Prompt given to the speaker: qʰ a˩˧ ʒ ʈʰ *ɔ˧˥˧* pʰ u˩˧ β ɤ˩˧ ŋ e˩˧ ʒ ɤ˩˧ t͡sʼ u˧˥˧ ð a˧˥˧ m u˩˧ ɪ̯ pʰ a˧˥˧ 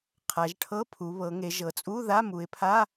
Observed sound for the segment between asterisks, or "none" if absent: ɤ˧˥˧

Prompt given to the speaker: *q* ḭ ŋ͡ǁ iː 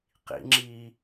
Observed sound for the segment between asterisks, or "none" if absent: q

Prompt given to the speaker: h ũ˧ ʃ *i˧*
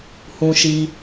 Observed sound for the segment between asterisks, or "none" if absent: i˧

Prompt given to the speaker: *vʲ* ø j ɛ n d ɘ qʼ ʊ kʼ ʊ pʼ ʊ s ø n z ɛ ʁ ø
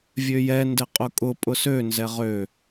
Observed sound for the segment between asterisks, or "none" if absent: vʲ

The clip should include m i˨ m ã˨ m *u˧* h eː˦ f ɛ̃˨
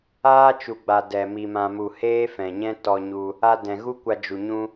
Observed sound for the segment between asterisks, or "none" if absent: u˨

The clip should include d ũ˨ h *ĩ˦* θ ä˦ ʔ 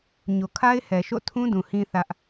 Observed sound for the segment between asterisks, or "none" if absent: ĩ˦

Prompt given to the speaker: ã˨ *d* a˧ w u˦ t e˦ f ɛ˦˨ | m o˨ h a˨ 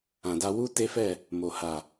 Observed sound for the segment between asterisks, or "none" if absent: d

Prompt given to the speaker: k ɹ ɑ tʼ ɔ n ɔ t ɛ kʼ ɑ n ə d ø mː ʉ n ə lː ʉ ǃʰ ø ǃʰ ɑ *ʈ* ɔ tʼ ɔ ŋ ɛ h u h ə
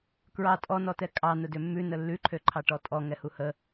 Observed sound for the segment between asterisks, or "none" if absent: ʈ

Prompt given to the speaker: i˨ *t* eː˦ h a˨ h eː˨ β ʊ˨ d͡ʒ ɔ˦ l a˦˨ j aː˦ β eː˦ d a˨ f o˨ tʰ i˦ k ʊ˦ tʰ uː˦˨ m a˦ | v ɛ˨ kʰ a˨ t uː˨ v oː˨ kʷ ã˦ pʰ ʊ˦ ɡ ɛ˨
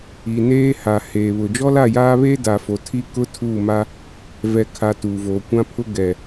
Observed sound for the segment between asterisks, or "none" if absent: n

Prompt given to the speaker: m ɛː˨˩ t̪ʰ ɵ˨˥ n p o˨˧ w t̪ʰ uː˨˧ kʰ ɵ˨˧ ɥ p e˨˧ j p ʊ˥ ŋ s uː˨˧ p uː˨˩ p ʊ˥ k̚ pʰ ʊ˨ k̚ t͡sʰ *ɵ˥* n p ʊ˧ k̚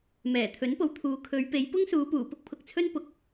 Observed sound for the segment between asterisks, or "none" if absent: ɵ˥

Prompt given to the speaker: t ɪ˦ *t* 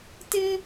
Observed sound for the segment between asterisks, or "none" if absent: none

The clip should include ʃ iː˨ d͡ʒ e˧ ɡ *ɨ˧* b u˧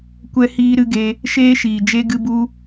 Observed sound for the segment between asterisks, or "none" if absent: ɨ˧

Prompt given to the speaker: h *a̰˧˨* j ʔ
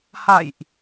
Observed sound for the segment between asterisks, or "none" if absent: a̰˧˨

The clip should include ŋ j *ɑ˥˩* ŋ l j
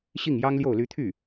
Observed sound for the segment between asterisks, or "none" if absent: ɑ˥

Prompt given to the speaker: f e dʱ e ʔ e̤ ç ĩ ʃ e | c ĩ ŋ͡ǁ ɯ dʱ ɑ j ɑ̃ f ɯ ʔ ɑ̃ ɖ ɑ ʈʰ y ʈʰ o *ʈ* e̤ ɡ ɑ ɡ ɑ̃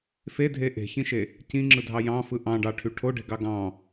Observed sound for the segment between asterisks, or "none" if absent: ɖ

